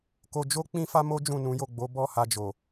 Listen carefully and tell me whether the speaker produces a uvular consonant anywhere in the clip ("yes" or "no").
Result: no